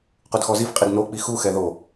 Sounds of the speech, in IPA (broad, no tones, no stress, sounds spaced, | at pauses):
q u d x ɔ z i f qʼ i d n o k͡p i x u x ɛ ð o